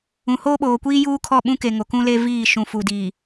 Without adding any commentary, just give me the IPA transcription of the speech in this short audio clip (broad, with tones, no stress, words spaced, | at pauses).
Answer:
ũ˨hoː˦ɓoː˨kʷiː˦ juː˦kʰɔ˦˨ɓũ˦ke˨ ŋo˨kũ˦le˦viː˦˨ ʃũ˨fu˨diː˨